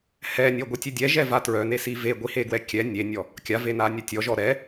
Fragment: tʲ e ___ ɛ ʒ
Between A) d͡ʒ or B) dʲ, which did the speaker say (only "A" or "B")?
B